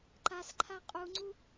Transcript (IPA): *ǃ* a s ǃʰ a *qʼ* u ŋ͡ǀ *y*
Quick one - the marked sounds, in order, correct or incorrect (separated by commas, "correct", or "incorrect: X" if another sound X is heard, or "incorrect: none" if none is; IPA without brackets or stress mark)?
correct, correct, incorrect: u